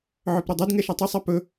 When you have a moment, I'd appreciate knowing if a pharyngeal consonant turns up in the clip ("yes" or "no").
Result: yes